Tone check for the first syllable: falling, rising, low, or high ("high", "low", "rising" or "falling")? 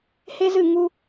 high